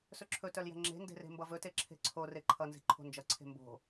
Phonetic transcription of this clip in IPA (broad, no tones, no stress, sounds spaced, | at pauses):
s ɵ ǁʰ ɵ t œ l j ɛ̤ ŋ͡ǁ e̤ n d e̤ r e̤ m b ʌ v ɵ t e ǁʰ e̤ ǀʰ o r e ǃʰ ʌ n z e̤ ǃʰ o̤ n d͡ʒ ʌ ǀʰ e̤ m b o̤